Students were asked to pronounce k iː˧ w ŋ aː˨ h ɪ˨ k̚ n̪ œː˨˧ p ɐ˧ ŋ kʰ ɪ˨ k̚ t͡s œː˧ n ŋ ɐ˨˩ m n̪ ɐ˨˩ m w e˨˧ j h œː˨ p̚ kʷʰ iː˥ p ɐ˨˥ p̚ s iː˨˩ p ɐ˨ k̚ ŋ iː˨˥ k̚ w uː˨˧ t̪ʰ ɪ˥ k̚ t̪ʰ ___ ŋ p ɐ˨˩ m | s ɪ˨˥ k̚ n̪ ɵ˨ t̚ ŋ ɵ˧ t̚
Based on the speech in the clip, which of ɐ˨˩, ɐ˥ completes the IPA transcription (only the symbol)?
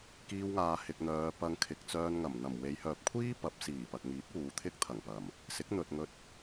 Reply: ɐ˨˩